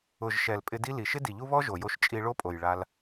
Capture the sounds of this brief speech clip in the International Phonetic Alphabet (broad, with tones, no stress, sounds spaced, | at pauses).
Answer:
ʊ˨ ʒ ʃ ɛ˨ l pʼ ɪ˧ d i˦ l i˨ ʃ ɪ˦ d i˨ ʎ u˦ β ɔ˦ ʒ o˨ j o˧ ʃ t͡ʃʼ i˧ ɭ o˦ pʼ o˨ j ɭ a˧ l